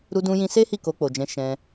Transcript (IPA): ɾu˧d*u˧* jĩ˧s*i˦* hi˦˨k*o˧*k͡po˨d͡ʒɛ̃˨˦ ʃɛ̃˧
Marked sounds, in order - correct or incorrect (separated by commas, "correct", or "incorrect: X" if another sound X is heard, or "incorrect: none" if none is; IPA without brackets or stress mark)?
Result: incorrect: ũ˧, incorrect: e˦, correct